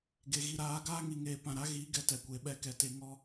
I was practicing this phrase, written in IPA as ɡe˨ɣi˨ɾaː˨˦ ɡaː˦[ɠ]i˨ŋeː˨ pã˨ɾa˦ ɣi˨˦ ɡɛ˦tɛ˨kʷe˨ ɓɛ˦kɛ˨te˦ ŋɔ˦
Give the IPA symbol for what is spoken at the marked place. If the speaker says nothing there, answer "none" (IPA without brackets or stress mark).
ŋ